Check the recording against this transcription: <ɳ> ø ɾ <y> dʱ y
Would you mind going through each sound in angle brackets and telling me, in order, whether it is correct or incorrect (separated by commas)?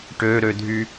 incorrect, incorrect